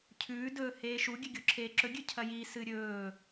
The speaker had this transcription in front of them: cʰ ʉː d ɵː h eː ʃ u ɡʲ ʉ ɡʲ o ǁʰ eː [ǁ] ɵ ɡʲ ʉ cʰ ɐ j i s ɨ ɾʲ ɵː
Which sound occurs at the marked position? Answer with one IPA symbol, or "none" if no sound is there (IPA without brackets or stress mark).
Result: ǁ